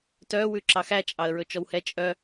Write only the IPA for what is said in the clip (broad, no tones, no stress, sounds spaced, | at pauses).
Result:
t œ w ʉ ǁ ɑ x æ t͡ʃʼ ɑ ə̯ ɹ ɵ t͡ʃ ɔ w h ɛ t͡ʃʼ œ